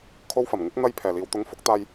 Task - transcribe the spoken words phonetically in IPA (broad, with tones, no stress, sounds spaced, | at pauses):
kʰ o˧ w f ɐ˨˩ m ŋ ɪ˨˥ k̚ n̪ ɐ˧ j pʰ ɛː˨˩ l iː˨ w t̪ ʊ˨˥ ŋ f ʊ˨˥ k̚ t̪ aː˧ j